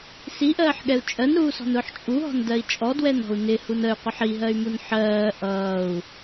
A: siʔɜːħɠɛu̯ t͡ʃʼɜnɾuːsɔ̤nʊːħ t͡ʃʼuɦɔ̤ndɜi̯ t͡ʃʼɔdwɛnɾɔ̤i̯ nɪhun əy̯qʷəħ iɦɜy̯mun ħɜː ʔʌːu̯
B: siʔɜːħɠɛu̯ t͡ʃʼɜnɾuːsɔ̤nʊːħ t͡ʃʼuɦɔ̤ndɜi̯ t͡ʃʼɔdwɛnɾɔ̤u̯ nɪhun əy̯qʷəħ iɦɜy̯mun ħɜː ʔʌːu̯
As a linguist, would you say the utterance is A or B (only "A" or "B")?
B